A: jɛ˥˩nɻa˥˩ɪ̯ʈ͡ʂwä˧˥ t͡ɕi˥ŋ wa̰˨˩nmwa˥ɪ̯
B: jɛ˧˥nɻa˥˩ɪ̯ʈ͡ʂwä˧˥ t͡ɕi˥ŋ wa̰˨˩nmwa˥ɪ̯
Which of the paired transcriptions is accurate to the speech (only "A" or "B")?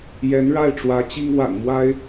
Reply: B